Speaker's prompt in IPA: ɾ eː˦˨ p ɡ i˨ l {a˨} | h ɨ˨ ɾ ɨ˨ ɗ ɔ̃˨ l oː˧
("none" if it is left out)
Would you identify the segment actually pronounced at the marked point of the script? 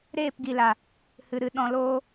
a˨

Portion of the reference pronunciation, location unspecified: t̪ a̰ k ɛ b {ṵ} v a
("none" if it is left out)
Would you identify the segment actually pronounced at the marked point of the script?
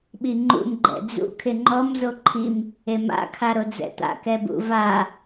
ṵ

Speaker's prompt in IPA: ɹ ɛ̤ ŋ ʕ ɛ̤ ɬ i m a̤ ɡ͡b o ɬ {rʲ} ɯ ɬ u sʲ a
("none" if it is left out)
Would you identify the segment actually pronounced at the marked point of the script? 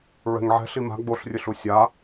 rʲ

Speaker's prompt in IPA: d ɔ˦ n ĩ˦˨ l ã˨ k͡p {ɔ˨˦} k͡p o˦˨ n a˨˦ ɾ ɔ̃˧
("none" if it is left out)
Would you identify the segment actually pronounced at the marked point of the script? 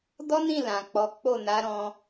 ɔ˨˦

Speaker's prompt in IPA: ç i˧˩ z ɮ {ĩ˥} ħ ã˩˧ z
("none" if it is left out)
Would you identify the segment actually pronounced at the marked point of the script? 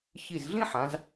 ĩ˥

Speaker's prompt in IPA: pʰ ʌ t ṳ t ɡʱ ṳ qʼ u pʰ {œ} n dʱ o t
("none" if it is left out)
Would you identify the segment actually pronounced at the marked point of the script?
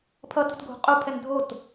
ɛ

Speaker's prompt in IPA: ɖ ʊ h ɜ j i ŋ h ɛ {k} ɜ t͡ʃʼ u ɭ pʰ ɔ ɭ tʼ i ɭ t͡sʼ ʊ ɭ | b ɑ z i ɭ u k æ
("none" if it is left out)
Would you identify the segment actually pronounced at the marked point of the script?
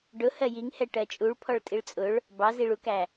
ʈ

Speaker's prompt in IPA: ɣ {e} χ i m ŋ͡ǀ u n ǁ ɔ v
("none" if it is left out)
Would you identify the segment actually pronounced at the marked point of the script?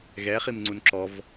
ɛ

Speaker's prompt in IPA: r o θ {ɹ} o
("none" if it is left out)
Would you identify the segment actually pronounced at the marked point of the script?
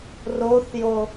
j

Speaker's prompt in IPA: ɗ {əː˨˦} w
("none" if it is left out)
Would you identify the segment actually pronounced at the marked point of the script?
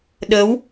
əː˨˦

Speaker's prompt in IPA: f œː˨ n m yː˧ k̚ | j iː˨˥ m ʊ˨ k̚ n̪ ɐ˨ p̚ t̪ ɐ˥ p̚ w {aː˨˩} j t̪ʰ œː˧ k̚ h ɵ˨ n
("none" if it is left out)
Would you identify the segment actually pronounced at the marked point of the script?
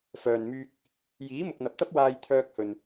aː˧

